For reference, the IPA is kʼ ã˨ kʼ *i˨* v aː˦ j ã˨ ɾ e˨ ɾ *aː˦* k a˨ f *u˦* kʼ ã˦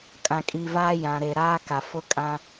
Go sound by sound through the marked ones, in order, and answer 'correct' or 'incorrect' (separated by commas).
correct, correct, incorrect